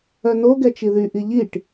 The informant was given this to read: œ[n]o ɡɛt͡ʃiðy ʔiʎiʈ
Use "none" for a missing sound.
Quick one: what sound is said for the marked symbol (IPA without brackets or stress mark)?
n